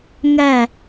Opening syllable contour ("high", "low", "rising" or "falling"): falling